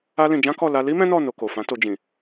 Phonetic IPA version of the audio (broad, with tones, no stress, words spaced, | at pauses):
a˦lĩ˧ d͡ʒã˦kɔ˦˨ la˧li˦ mɛ̃˦nɔ˦˨ no˧ko˨fã˨˦to˧ d͡ʒĩ˨